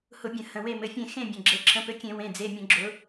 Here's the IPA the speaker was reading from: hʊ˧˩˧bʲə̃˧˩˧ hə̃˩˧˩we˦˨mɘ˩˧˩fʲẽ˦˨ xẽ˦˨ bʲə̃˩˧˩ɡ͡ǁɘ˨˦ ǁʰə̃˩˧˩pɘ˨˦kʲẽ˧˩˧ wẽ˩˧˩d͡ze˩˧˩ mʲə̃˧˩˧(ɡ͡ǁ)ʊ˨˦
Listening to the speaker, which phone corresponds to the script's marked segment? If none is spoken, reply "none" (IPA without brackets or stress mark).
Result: ɡ͡ǁ